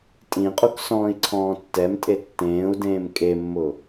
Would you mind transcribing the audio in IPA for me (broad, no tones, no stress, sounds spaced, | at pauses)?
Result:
tʼ ĩ qʼ u k s ɔ̃ː i̯ ǀʰ ɔ̃ː tː ɛ m tʼ e tː ẽː u̯ d ẽː m kʼ e mː ʊ